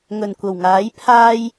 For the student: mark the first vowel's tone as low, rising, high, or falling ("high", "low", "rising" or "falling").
low